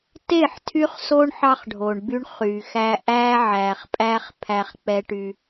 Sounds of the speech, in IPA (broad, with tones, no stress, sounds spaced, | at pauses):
t e˦˨ ħ tʰ y˦ χ s o˦ ɳ ħ ɑ˦ χ ɖʱ o˨ ɳ b y˦ ɳ χ y˨ x æ˦ ʔ æ˦ ʕ æ˨ χ pʼ æ˦ χ pʰ æ˦ χ k͡p ɛ˦ ʈ y˦